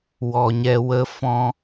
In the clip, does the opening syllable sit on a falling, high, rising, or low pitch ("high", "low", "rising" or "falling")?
low